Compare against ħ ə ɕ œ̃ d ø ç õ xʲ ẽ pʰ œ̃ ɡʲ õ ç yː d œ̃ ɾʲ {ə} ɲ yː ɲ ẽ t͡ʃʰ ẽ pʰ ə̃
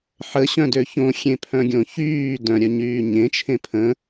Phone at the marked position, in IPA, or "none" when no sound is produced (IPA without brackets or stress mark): œ